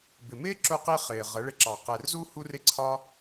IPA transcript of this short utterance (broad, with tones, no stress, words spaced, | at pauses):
bɪ˨mɪː˦ǁʊ˧qi˧ χɪː˨ʁə˨˦ɭɪ˧ǁɑ˨ qɛ˨rzu˦ hu˦r ɪ˦ǀʰɒ˦